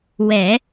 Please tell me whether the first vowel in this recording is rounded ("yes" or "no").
no